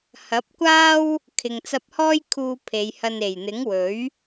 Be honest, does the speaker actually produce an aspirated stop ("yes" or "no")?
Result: yes